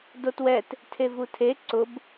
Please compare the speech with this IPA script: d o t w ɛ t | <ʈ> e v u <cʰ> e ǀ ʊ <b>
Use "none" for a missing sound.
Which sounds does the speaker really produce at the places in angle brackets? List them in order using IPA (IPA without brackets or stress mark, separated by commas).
tʰ, tʰ, b